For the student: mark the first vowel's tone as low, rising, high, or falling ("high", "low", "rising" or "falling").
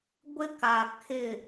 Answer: high